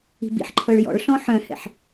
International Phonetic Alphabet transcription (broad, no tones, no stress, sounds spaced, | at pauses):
i̤ b ḭ ħ ǃʰ ɤ ɭ j ɔ̰ ɭ ɬ ɔ̃ ħ œ̃ h ɛ̰ ħ